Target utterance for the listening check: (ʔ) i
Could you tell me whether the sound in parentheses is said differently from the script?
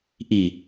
no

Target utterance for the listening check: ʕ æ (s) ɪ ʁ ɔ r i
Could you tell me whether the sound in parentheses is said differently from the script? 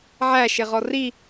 yes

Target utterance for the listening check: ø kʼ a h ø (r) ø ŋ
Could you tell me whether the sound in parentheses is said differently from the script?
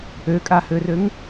no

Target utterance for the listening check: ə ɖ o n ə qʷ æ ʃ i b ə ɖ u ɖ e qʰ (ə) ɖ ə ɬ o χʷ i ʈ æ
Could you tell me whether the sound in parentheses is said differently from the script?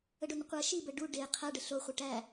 yes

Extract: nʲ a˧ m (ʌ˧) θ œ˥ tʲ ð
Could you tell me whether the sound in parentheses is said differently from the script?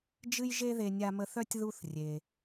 yes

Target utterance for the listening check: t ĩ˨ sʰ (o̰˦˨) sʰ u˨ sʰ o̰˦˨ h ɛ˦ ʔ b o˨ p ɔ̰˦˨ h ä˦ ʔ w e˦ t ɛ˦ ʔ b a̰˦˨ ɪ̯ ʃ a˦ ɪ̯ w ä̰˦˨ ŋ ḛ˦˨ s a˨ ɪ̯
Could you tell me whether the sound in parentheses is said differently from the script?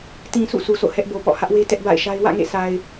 yes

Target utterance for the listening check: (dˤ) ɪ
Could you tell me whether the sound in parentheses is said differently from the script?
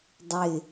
no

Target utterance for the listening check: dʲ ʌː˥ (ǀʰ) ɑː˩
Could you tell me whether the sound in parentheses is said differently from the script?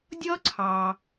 no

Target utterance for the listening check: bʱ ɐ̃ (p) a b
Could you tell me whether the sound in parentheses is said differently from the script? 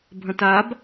yes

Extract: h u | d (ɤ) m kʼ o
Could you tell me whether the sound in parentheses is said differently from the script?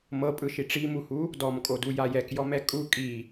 yes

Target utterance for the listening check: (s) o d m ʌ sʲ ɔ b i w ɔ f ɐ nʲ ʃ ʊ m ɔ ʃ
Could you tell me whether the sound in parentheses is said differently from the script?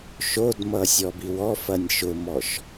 yes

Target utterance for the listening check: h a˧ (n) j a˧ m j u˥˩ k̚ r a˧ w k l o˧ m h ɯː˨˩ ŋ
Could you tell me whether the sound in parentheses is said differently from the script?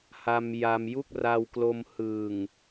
yes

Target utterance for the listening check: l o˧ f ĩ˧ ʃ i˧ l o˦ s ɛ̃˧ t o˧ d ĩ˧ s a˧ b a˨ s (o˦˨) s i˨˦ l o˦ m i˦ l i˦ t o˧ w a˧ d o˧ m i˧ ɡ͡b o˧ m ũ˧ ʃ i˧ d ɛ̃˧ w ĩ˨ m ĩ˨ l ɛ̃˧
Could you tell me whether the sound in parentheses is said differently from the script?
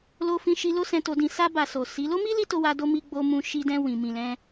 yes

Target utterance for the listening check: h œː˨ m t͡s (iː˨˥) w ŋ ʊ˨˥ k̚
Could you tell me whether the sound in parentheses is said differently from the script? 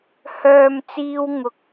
yes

